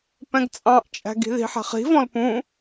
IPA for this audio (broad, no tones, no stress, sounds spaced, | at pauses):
p ɛ̃ ɡ t͡sʼ ɑ̃ ʔ t͡ʃʼ æ̤ ɡ i̤ ð i̤ ħ æ̤ χ i̤ v ɔ̃ l p ũ